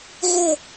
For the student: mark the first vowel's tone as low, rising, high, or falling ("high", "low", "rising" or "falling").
falling